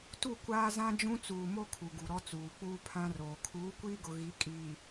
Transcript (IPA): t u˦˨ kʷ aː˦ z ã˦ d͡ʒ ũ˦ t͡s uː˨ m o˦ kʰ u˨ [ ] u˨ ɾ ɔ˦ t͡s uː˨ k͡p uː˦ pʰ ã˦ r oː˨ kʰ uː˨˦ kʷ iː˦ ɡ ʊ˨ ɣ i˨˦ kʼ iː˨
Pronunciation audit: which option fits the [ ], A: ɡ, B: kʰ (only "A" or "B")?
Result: A